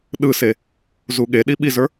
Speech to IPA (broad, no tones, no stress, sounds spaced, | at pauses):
ɗ ɯ s e | z u ɠ e ɗ i ɓ i z ə˞